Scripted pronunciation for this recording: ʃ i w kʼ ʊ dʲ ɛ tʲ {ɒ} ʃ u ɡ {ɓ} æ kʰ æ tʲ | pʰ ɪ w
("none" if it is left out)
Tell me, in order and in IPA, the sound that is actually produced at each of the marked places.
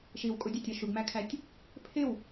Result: ɒ, m

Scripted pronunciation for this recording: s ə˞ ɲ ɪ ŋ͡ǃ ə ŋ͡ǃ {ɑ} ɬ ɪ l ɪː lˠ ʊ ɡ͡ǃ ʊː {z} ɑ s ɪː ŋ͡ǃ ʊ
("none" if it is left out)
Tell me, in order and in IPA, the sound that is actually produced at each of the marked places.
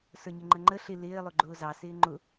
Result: ə, z

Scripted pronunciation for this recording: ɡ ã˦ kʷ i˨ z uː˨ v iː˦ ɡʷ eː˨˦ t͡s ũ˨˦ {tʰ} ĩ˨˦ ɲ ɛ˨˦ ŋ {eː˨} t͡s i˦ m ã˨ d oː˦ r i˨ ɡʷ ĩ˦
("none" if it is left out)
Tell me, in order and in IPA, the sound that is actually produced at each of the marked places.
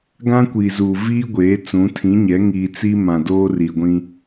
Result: tʰ, iː˨

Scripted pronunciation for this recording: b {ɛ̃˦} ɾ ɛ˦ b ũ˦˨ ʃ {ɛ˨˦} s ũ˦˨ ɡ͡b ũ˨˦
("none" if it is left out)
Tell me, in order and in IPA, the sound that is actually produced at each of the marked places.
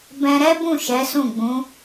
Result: ɛ̃˧, ɛ˨˦

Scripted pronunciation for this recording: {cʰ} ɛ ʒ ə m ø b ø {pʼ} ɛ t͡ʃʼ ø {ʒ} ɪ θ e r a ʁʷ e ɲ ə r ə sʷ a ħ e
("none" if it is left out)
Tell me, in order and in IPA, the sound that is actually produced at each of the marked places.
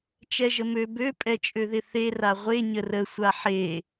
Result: t͡ʃ, pʼ, ð

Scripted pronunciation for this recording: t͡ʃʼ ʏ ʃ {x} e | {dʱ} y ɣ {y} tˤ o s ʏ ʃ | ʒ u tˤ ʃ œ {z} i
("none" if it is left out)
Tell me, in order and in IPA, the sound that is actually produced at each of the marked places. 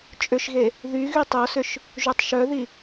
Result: ɣ, ð, y, ð

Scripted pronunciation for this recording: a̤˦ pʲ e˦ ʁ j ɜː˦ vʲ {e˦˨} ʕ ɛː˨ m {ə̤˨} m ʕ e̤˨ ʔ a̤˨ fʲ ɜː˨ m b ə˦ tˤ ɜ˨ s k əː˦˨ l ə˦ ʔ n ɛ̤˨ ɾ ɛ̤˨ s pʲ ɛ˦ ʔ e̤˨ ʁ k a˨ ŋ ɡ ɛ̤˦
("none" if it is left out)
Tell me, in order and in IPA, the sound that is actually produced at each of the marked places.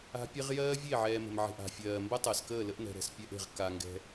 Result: e˦˨, ə̤˨

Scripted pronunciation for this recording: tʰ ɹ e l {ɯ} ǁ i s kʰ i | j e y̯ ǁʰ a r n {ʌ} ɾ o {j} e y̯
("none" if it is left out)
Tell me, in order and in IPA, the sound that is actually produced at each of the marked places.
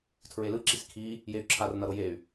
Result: ɯ, ʌ, j

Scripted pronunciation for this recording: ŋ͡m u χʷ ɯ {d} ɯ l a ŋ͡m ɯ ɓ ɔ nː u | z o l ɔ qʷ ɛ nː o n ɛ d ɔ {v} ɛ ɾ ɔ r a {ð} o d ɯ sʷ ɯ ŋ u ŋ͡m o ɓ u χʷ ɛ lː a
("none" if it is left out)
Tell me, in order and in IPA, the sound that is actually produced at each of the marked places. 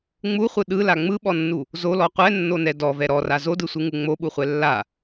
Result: ɗ, v, z

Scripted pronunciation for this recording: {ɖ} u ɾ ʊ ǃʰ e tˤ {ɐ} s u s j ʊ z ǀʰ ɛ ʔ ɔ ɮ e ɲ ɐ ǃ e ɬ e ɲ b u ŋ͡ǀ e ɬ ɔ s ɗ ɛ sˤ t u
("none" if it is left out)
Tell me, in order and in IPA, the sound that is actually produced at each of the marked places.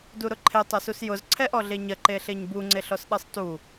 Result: d, ɐ

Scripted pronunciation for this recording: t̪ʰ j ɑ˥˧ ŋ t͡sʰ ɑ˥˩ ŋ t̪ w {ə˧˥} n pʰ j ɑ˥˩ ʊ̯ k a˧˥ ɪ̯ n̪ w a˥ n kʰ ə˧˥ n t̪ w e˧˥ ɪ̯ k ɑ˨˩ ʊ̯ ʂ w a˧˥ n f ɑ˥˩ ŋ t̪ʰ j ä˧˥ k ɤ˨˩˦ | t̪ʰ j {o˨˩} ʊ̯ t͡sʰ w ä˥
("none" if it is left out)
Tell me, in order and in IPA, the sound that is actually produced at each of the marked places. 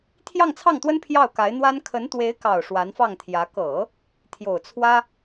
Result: ə˥, o˨˩

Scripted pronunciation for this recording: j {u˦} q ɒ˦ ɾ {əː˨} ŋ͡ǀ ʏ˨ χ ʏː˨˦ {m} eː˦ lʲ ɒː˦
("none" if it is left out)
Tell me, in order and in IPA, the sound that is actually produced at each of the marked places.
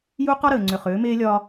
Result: u˦, əː˨, m

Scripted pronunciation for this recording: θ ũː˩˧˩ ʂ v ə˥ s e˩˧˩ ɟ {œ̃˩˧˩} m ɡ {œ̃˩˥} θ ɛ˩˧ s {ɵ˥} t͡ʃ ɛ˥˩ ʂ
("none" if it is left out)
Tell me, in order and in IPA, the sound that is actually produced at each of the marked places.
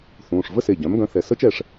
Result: œ̃˩˥, œ̃˩˥, ə˥

